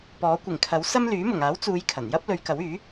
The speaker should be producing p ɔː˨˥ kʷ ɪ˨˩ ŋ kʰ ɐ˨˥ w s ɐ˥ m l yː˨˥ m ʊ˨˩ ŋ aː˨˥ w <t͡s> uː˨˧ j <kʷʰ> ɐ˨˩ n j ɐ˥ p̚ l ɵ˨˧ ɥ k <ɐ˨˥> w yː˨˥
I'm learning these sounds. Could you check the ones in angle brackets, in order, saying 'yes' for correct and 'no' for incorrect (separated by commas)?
yes, no, yes